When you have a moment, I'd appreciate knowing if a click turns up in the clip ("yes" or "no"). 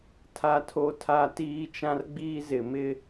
no